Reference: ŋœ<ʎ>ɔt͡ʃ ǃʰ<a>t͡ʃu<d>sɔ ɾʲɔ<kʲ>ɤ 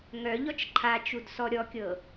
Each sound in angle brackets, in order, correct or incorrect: correct, correct, correct, correct

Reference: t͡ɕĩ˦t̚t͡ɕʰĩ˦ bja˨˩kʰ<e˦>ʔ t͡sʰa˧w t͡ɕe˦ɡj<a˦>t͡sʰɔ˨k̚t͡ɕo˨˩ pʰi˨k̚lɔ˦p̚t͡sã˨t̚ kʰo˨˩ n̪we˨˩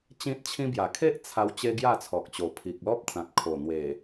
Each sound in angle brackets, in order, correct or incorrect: correct, incorrect

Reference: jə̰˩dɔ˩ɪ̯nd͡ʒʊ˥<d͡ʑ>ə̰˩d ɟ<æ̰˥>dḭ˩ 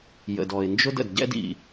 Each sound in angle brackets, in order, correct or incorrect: incorrect, incorrect

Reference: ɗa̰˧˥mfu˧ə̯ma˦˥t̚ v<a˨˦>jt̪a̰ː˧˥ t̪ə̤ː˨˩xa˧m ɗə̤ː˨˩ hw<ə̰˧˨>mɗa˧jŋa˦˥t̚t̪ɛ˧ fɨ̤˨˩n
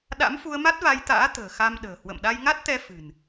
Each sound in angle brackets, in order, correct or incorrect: incorrect, correct

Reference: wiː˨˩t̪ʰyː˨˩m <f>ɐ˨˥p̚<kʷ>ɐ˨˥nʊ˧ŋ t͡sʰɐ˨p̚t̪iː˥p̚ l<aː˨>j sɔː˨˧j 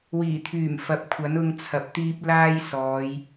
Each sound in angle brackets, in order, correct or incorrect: correct, incorrect, incorrect

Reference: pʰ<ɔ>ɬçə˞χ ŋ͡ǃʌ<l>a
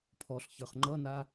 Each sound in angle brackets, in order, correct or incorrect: correct, incorrect

